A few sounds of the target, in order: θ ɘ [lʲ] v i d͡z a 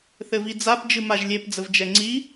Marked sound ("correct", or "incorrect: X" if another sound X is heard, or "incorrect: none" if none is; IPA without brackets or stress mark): incorrect: none